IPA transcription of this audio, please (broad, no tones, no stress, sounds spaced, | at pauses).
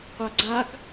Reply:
qʷ a ɡ͡ǀ a ɡ